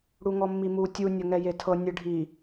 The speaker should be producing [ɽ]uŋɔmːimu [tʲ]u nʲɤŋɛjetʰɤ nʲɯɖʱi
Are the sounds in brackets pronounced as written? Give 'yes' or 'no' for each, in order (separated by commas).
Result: yes, yes